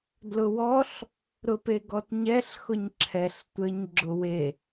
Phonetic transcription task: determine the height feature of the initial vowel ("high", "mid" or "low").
high